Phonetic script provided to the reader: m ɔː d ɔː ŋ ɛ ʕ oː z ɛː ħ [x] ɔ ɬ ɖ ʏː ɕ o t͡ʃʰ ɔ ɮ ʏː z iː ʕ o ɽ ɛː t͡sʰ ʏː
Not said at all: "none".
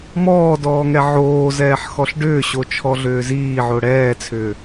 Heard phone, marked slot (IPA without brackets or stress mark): x